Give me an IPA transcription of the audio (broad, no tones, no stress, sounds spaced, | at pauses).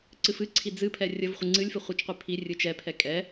ǀ ɨ f ɨ ǀʰ i d͡z ɨ pʰ ɛ rʲ ə v χʷ ɨ ŋ͡ǀ ɨ lʲ f ɨ χʷ i t͡ʃ qʷ i pʰ i rʲ ɨ t͡ʃ ɛ pʰ ɛ kʼ ɛ